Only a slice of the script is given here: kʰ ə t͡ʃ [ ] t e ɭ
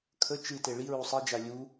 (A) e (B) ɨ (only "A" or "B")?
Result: B